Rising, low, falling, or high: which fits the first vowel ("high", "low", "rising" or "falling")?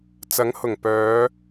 rising